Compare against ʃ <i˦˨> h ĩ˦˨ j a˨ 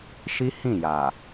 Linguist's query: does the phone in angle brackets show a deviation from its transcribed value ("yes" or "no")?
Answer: yes